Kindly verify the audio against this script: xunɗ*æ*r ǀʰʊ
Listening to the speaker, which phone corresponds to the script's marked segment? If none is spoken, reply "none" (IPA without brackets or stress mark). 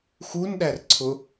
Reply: æ